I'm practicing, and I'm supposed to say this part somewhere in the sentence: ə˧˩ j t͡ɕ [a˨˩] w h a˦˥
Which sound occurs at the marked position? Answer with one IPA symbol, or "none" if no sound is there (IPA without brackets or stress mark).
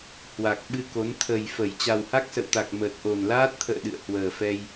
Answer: a˨˩